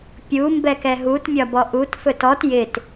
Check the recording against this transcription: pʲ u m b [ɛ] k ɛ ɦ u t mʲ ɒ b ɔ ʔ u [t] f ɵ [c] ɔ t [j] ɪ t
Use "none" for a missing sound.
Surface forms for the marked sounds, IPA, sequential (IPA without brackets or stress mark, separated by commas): ɛ, t, t, j